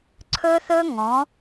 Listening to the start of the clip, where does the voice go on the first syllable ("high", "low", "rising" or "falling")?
high